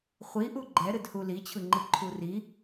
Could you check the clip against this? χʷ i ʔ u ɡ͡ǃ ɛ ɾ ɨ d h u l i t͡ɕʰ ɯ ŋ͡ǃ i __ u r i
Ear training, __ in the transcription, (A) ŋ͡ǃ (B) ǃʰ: B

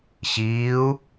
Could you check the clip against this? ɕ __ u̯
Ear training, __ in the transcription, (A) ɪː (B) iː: B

